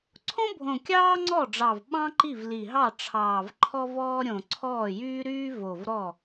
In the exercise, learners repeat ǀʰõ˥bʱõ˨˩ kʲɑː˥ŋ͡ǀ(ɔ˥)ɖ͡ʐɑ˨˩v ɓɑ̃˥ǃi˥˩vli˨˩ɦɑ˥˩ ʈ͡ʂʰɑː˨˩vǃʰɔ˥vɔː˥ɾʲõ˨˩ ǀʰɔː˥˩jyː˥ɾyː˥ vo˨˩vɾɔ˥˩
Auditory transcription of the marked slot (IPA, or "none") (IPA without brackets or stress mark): ɔ˥˩